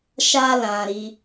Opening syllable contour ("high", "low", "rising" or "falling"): high